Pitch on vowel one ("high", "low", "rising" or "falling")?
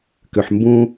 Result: low